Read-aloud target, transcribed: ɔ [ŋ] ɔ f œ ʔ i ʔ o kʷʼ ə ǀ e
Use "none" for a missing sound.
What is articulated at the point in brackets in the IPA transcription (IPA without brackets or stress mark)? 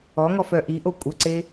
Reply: ŋ